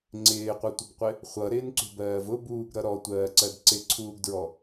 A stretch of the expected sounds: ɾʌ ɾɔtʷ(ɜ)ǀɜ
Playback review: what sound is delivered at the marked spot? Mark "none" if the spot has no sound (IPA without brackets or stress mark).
ɜː